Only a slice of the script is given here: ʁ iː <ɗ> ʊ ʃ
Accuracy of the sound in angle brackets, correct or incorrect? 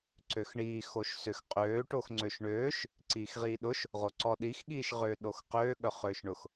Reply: correct